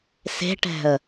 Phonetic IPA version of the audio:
se̤ʈɛ̤ə̯

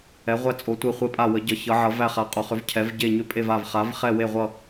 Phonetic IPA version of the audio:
ɛ˩˧ʁʷæ˧˩ t͡sʼo˩˧tʷe˧˩ χʷe˧˩pʼa˧˩ wə˩˧ɟʌ˩˧ çʌ˩˧ʕʌ˩˧væ˧˩ χa˩˧qʼo˩˧χʏ˩˧v cʰɛ˩˧vɟe˧˩ ɲʏ˧˩pʼe˧˩va˧˩v χa˩˧v χɛ˧˩we˧˩ʁʷʌ˧˩

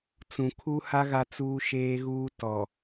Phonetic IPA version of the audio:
t͡sũ˨kʰu˦ha˦ ɣa˦t͡suː˦ʃeː˦ɣuː˦ tɔ˨

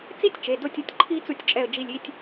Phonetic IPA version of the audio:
t͡si˥tʲt͡ʃe˩˧˩do˦˨tʲu˦˨tʲ ǃʰi˥t͡su˦˨tʲt͡ʃʼɛ˦˨ə̯d͡ʒi˦˨lʲ i˦˨tʲ

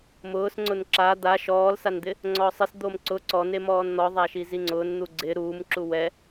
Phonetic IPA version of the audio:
mʊːs ŋ͡ǀʊnǁa d̪a ʃɔːlsand̪ɪ | ŋ͡ǀɔːsˤɪs d̪omǀʊ ǀɔne mɔːnn̪ɔ ðˤaʃiziŋ͡ǀʊːn n̪uɡ͡ǀɪ ɾuːmǁu wɛ

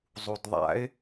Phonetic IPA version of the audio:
zˤudðˤa̰ɪ̯

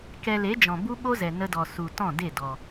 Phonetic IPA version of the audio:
kɛ˧le˨˦d͡ʒɔ̃˨ bu˦ɓo˦zɛ˨ nə˧dɔ˨ su˨ tɔ̃˦˨de˦˨dɔ˨

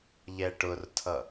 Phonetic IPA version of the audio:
ʎɛʈʊrtʰʌ

